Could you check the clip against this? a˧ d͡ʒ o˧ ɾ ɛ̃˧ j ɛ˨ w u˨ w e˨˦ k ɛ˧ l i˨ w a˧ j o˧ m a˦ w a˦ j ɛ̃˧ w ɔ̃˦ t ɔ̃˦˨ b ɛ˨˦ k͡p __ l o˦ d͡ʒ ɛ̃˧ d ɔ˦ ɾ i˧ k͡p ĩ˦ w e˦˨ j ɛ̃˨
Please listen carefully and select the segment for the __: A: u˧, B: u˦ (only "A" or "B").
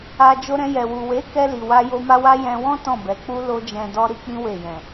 B